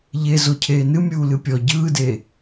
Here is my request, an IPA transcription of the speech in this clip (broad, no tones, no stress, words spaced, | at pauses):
ʎe zocʰeːnɨ mʲuːlɨpʲɔ ɟɯːdeː